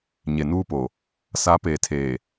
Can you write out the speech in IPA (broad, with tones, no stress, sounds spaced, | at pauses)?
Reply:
ɲ e˨ n uː˦ p o˨ | s a˨˦ p eː˨ tʰ eː˨